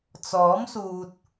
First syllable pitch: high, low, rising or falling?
rising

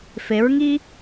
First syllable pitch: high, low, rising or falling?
rising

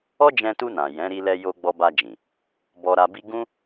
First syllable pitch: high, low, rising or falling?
high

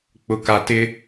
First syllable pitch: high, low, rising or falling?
low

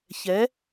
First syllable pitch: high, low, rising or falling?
rising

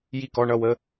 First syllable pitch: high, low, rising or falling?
falling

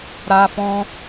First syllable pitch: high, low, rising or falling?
high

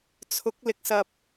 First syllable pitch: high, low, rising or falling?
rising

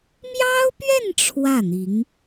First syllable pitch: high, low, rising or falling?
high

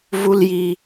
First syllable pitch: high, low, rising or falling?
low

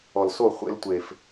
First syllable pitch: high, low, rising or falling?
low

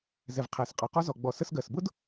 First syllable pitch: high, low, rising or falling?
low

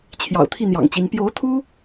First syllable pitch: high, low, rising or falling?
low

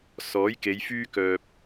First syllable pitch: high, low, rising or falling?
rising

